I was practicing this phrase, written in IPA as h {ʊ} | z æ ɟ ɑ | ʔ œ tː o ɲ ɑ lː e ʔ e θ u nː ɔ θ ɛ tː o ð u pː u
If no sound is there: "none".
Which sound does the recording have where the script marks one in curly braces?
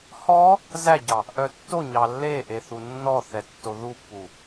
ɔ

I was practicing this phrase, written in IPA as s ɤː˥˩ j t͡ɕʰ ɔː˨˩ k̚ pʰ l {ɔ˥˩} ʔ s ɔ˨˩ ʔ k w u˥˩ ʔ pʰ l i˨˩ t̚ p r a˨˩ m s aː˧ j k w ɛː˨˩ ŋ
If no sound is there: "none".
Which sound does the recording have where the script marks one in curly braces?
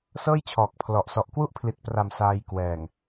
ɔ˨˩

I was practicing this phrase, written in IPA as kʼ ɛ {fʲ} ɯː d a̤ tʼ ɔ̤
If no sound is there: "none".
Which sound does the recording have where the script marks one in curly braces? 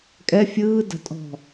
fʲ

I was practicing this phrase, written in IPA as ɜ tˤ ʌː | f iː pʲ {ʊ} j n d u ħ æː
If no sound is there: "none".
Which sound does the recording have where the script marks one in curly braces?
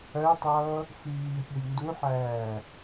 ʊ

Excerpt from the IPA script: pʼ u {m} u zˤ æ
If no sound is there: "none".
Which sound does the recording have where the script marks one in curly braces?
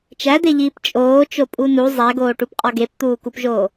n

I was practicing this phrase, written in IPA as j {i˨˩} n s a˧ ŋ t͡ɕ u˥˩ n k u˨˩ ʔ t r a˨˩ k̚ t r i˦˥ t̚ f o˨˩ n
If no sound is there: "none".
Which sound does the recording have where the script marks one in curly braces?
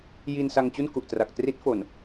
i˧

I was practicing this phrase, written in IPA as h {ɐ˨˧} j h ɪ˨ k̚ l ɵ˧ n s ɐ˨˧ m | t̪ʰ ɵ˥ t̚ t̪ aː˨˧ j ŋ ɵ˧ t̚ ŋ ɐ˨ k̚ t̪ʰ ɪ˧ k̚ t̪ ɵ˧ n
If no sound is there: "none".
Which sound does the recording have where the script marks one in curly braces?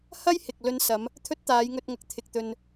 ɐ˥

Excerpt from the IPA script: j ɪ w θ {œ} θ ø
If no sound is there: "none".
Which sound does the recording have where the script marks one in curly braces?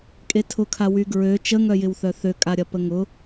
œ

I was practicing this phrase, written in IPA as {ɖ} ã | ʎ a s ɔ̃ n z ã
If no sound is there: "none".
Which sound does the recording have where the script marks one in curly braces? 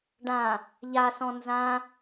ɖ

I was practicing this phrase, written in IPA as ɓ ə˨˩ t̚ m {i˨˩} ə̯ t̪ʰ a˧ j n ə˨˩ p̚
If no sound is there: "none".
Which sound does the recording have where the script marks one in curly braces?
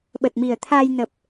i˨˩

